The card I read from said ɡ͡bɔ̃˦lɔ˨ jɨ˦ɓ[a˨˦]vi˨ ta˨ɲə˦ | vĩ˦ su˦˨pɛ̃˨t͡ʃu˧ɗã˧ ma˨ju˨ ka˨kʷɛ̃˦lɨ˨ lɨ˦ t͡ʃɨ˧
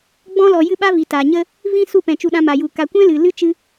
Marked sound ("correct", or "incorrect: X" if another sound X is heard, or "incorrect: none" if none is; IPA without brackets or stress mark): incorrect: a˦